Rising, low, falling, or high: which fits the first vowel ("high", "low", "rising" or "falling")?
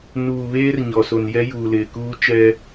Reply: low